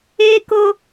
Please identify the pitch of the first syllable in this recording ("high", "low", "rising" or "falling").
high